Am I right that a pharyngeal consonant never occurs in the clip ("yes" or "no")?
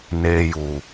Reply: yes